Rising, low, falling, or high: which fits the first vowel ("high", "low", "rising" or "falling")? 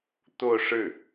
falling